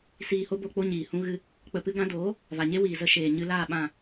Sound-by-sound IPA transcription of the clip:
s iː˧ h o˦ b o˧ k͡p o˦ ɲ iː˨ h ũ˦ ɣ ɨ˧ | k͡p ə˧ p ɨ˦ ɡ ã˧ d oː˨˦ | v a˨ ɲ e˦ w iː˨ z ə˧ ʃ eː˨ ɲ ɨ˧ l aː˦˨ ɓ ã˦˨

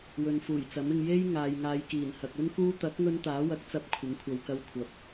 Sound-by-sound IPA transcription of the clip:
w ɵ˨ n f uː˨˩ j t͡s ɐ˨˥ m ɪ˧ ŋ j e˥ j ŋ aː˨ j ŋ aː˨˧ j k iː˨˩ n h ɐ˨ k̚ ɵ˥ n k uː˥ t̪ ɐ˨˥ k̚ ŋ ɵ˧ n t̪ aː˨˥ w ɐ˨˥ k̚ t͡s ɐ˧ p̚ kʷʰ ɪ˨˥ ŋ kʷʰ ɐ˨ w k ɐ˧ w kʷʰ ɐ˨˥ p̚

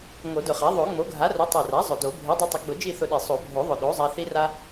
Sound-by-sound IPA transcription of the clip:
ŋ o˨˩˦ d ʊ˨˩ χ a˩˥ ðˤ o˨˩˦ ŋ͡m o˩˥ ɡʱ a˩˥ r ʊ˩˥ tˤ i˨˩ r a˩˥ zˤ ʊ˨˩ d o˨˩˦ bʱ i˩˥ dˤ i˧ tˤ ʊ˩˥ ɡ͡b ʊ˨˩˦ d͡ʒ i˥˨ θ ʊ˧ ɗ i˨˩ sˤ o˨˩˦ bʱ o˨˩˦ ðˤ ʊ˨˩ ɗ o˩˥ zˤ a˧ θ i˧ r a˧

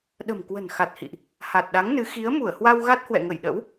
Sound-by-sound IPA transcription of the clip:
ɗ ə̤˨˩ m k w ə̤˨˩ n x a˨˩ t̚ h ḭ˧˨ ʔ | h a˨˩ t̚ ɗ a˨˦ ŋ n ɨ˨˦ x i˨˦ ə̯ m u˧˩ ə̯ h w a˧ w ɣ a˦˥ t̚ h w ɛ̰˧˨ ŋ ə˧˩ j ɗ ə̰˧˥ w

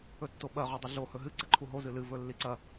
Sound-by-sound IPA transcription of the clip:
ɵ tː o ɓ ɐ ʁ o dˤ ɨ ɮ o h ɵ ɦ ɨ ǀ ɐ ǃʰ u ɦ o z ɨ l ɨ v ɵ lː i ǀ ɐ

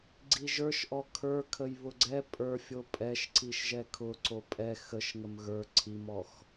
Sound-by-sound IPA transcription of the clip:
ɡ͡ǀ i ʒ ə˞ ʃ ʔ ɔ kʰ ə˞ kʰ ə j β ʊ ɡ͡ǀ ɛ pʼ ə˞ fʲ o pʼ ɛ ʃ ǀ i ʃ ʒ ɛ kʰ ʊ ǀ o pʼ ɛ x ə ʃ ŋ ə m ɣ ə˞ ǀʰ i m ɔ x

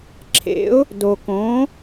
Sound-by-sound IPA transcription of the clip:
ǁʰ ḛ˧˥ ʊ̯ | d o˧ k õ˧˥

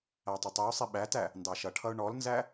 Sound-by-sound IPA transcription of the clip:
æ tˤ ʌ tˤ i ʊ̯ sˤ i ɓ æ t æ | n d ɑ ʃ ʌ ʈʰ ʌ ʊ̯ ɳ ɔ l n z æ

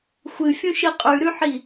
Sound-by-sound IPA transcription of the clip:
xʷ ɨ fʲ ũ ʃ i qʼ ʉ ɾ ʉ ħ i

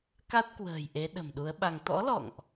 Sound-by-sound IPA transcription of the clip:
k a˦˥ t̚ k w ə̤ː˨˩ j ʔ e˨˦ ɗ ə̤˨˩ m ɗ u˨˦ ə̯ ɓ a˧ ŋ t̪ ɔ̰˧˥ l ɔ̰˧˨ ŋ ʔ

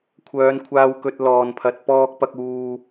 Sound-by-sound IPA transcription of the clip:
kʷʰ œː˨˧ n kʷʰ aː˧ w k ɵ˨ t̚ l ɔː˨ n pʰ ɐ˨ t̚ p ɔː˧ k̚ p ɐ˧ k̚ uː˧

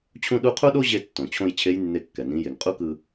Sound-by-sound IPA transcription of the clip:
t͡ɕʰ ũ˥ ɗ u˧˥ qʰ u˥ ɗ o˥ ʑ e˧ tː õ˩ t͡ɕʰ õ˧ j t͡ɕʰ e˧˥ j nː e˧ kː ɛ˩ n ĩ˩˧ j e˩ ŋ qʼ u˥ k ɯ˧

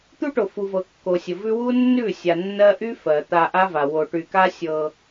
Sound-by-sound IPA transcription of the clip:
t̪ u˦ ʈ o˨ f u˨ v ɤ˨ kː o˨ sʲ ə˨ v ʉ˦ w u˦ nː ʉ˦˨ sʲ a˨ nː ɜ˦ ʔ y˦ f ɜ˨ t̪ a˦ ʔ a˦ v a˨ w o˨ ʈ y˨ k a˦ sʲ ɤ˦

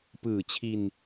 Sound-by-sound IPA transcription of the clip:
p ɯː˨˩ t͡ɕʰ i˧ n

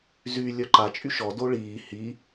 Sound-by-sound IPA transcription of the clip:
z y lʲ œ ǃ a t͡ʃʼ y ʃ ɔ d o ɭ iː h i

